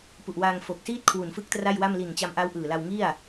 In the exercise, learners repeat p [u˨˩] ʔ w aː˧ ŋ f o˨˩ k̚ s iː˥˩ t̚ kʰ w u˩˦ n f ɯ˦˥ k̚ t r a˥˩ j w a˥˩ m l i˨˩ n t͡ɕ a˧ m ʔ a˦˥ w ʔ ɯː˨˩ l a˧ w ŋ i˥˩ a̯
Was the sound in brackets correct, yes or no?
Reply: yes